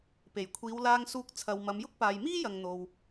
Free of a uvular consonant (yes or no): yes